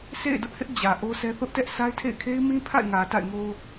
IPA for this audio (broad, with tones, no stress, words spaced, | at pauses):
sʰḛ˦˨ɪ̯dʊ˦ʔhɪ˦ʔ d͡ʑä˨ʔo˦sɛ˦ θʊ˦ʔtɛ˦ʔsʰa˦ɪ̯tʰḛ˦˨ɪ̯ kʰe˦ɪ̯mĩ˦pʰa̰˦˨ɪ̯ ŋä˨ ta̰˦˨ɪ̯ŋo˦